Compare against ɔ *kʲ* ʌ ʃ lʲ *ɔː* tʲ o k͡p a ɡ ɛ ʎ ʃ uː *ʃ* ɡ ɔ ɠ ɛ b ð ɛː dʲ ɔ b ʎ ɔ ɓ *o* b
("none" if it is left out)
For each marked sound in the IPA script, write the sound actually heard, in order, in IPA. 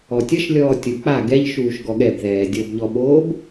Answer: tʲ, ɔː, ʃ, oː

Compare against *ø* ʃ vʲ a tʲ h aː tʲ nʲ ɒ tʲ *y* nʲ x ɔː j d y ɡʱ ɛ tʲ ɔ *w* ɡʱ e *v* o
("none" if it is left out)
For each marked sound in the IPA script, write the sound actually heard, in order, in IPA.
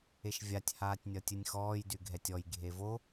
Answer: e, ɨ, j, v

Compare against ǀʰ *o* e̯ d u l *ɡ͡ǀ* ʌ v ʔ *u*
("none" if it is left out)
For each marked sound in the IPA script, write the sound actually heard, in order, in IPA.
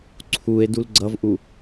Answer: u, ɡ͡ǀ, u

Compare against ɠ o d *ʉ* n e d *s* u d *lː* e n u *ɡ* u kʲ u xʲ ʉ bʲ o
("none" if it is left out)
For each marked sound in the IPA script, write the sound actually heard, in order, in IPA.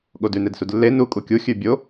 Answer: ʉ, s, lː, kʼ

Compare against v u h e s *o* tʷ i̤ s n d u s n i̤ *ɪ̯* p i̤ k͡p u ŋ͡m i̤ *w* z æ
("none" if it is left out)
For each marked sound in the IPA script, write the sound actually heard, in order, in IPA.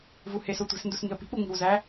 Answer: o, ə̯, w

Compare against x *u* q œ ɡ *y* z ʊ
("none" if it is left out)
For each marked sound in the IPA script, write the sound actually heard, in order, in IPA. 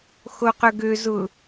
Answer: o, ø

